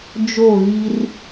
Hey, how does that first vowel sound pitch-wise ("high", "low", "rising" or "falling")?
falling